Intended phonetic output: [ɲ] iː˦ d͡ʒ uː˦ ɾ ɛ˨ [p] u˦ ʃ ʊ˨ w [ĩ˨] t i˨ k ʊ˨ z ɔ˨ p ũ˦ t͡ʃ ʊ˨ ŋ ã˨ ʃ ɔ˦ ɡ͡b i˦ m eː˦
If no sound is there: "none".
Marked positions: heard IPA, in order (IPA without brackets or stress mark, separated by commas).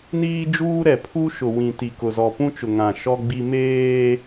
n, pʰ, ĩ˨